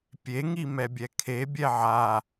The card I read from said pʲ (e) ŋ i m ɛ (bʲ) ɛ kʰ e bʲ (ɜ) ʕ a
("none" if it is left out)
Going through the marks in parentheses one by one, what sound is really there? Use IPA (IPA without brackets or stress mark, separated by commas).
e, bʲ, ɛ